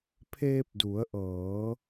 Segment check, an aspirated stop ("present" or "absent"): present